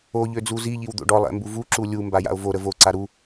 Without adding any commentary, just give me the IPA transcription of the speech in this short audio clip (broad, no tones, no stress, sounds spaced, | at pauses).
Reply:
o ʎ ø d͡z u z i ʎ i w d̪ o̰ ɖ ɔ lˠ ɛ̰ m b u v u ǁ u lʲ u m b a j a̰ o̯ v o ɾ ə v o ǀ a ɾ u